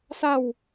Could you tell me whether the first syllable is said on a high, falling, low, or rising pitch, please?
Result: falling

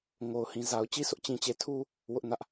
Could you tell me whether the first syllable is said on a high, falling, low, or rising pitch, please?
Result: low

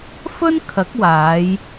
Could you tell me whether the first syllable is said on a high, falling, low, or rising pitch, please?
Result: high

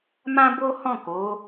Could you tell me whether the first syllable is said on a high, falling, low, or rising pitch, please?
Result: high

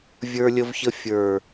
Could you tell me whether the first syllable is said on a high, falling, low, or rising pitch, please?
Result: high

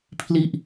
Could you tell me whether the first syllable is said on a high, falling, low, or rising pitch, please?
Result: falling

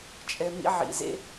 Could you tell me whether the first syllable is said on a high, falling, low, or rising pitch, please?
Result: low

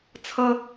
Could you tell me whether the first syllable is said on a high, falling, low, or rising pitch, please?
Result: high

